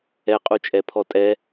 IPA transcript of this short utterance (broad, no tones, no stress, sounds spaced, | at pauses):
ɛ qʼ u t͡ʃʼ ɛ pʰ ɔ tʼ ɛ